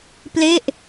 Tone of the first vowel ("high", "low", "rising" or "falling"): falling